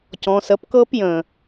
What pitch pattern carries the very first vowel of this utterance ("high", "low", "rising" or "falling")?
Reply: low